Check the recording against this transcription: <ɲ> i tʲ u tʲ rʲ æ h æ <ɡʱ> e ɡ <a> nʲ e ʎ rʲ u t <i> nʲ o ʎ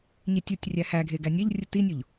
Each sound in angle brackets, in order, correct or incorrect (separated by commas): correct, correct, incorrect, correct